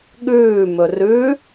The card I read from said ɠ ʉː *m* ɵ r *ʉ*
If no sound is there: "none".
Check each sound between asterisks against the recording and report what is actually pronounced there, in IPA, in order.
m, ʉ

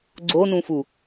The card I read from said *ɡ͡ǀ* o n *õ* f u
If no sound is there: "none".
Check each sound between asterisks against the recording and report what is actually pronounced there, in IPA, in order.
ɡ͡ǀ, ũ

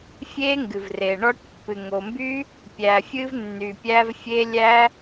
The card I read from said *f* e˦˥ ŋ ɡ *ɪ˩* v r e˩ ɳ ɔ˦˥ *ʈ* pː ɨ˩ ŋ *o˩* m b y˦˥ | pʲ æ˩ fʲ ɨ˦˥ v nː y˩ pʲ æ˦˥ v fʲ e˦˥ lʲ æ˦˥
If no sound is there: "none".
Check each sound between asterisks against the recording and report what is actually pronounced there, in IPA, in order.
fʲ, ɨ˩, ʈ, o˩

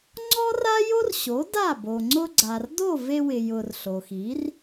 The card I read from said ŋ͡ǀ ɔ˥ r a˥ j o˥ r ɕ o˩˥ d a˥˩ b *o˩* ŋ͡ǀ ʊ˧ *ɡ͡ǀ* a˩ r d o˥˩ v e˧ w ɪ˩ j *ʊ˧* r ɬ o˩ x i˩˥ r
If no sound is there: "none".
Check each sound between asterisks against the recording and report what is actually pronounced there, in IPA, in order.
o˩, ɡ͡ǀ, ʊ˩

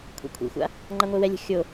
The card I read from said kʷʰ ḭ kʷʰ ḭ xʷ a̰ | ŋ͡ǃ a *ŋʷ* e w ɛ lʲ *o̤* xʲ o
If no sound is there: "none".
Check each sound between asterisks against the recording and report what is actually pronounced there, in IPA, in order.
ŋʷ, o̤

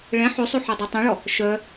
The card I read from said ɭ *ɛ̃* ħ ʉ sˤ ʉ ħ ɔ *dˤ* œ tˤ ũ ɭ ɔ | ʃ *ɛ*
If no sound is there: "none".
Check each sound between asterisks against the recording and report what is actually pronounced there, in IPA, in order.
ɛ̃, dˤ, œ

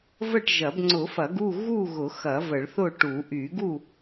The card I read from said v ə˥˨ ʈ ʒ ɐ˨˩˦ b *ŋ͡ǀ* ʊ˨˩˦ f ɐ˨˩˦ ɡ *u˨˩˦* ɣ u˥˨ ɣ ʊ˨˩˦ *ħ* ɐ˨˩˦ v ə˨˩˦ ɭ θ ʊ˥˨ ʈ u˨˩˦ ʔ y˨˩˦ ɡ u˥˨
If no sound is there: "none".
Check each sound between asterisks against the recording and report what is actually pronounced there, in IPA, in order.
ŋ͡ǀ, u˥˨, x

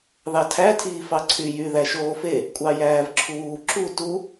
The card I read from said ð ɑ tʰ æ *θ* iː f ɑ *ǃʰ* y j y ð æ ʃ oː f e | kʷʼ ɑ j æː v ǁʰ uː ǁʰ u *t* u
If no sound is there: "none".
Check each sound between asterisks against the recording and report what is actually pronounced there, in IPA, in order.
tʰ, ǀʰ, t

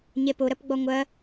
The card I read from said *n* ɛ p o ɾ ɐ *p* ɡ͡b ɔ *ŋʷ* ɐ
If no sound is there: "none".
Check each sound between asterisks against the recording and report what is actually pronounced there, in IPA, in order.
ɲ, p, ŋʷ

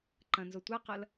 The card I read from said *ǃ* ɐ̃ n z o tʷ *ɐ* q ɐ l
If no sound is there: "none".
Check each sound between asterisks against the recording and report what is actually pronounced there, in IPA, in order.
ǃ, a

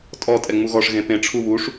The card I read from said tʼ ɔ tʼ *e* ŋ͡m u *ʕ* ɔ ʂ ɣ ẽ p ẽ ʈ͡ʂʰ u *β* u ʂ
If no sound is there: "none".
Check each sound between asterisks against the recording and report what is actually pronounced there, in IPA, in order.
ɛ, ɣ, β

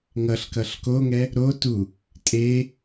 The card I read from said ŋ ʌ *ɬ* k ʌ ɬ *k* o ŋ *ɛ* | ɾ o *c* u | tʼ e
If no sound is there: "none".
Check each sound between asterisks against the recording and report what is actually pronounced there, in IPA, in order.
ɬ, k, ɛ, t

